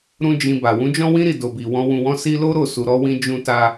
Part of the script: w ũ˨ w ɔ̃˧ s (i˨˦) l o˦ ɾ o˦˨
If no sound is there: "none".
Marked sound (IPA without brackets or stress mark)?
i˧